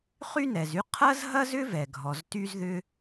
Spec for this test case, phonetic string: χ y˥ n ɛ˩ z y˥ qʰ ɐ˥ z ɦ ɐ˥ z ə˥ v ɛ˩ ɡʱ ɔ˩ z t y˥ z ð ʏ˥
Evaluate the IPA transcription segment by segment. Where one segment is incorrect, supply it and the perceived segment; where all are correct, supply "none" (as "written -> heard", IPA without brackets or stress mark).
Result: ə˥ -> ʏ˥